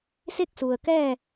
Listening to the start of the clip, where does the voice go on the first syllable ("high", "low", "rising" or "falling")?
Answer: falling